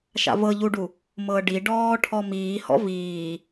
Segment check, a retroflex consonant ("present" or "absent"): present